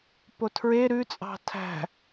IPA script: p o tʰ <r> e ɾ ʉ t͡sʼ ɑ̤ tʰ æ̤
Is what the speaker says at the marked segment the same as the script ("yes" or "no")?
no